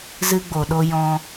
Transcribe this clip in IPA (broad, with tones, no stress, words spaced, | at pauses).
zɨ˧ɡ͡bo˨ɗo˧ jɔ̃˧